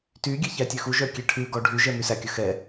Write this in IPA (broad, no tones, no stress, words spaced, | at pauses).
tyɡʲɛ çætʲøxuʒœ kʲeʈʰʉɡɔ ɖʱyʒɛ mysækʲɵ xɛ